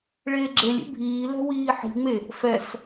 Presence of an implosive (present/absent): absent